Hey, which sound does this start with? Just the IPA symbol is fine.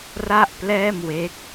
r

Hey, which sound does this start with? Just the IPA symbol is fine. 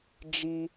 d͡ʒ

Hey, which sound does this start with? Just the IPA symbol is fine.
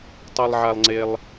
tˤ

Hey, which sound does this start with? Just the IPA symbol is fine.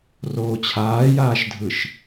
r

